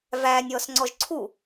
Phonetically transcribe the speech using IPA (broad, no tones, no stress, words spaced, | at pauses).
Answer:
væːnʲɔːsŋ͡ǀɔʒ ǀʰu